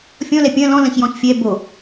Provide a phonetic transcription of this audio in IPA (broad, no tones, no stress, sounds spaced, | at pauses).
fʲ ɔ̃ l ɛ pʲ ɐ̃ l ɔ̃ l ɐ̃ ç j ɔ̃ ç fʲ ɛ b o